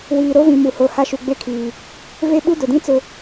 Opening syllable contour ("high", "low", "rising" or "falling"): low